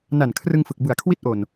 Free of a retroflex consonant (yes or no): yes